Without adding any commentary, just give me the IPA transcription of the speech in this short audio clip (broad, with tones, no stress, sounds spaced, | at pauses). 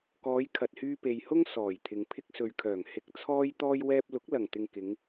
k ɔː˨˧ j kʰ ɐ˨ t̚ h yː˧ p e˨ j h ʊ˥ ŋ s ɔː˨˩ j t̪ʰ ɪ˨ ŋ pʰ ɪ˧ k̚ s ɵ˨ ɥ kʰ œː˨˩ ŋ h ɪ˧ k̚ t͡sʰ ɔː˥ j t̪ ɔː˥ j w ɛː˧ p̚ l ʊ˨˥ k̚ l ɐ˨˩ ŋ t̪ ɪ˨ ŋ k ɪ˨˧ ŋ